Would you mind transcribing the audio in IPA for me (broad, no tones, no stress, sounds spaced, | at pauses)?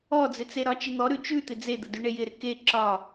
ɔ d͡z ɪ t͡s e ɾ ɒ t͡ʃ ɪ n̪ ɔ ɾ ʉ t͡ʃ ʉ t̪ ɪ d͡z e d̪ ə d ʉ ɳ e j ɪ ɾ ɪ k e ǁ ɒ